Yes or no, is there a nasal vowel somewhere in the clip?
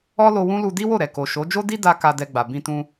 yes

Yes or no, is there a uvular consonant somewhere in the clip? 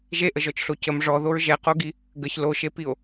yes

